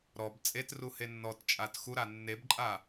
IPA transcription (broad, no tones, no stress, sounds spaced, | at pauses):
ɾ ɔ b t͡sʼ e t r u h e nː ɔ t t͡ʃʼ a t x u ɾ a nː e b ǃʼ a